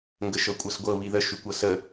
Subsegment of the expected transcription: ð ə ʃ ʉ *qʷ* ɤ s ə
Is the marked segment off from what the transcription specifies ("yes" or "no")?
yes